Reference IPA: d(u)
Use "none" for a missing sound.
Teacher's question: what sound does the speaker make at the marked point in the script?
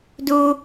u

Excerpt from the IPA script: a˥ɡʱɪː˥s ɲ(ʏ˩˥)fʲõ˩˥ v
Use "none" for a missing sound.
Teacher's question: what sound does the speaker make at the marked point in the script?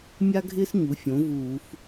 u˩˥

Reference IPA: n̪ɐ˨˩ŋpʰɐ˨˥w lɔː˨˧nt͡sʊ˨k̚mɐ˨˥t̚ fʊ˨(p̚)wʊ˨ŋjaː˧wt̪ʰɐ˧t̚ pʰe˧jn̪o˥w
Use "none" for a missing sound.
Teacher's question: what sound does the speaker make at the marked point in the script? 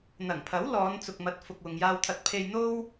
k̚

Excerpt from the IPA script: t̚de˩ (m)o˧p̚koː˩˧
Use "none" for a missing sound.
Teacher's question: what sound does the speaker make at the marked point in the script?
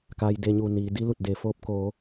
f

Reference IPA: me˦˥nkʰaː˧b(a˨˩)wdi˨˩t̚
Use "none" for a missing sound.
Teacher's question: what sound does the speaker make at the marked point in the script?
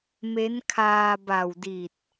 a˨˩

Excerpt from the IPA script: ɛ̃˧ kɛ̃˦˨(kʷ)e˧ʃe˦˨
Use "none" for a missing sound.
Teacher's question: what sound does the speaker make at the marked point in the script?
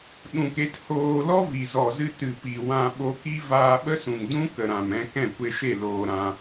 kʷ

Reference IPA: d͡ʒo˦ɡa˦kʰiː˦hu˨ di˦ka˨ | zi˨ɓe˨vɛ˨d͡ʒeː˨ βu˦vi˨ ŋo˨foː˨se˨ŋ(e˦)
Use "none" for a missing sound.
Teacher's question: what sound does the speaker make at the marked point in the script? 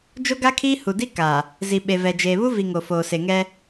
ɛ˦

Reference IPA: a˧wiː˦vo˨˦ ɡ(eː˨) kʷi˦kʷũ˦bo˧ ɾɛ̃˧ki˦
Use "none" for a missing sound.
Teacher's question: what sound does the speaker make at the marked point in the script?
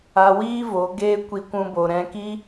eː˦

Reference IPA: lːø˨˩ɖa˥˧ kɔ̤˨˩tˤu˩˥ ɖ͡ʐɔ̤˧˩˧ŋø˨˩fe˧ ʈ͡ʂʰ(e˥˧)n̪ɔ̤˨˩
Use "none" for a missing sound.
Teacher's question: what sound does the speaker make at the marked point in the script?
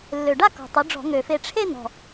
e˥˧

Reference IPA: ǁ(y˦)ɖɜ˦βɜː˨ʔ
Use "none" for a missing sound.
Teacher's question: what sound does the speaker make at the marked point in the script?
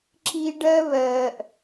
i˦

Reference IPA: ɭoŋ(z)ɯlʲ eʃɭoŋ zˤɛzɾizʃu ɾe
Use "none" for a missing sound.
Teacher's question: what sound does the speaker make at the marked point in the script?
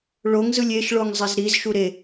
z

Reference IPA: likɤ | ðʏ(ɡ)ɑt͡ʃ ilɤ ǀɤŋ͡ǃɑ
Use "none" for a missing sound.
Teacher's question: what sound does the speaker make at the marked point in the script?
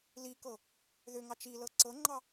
ŋ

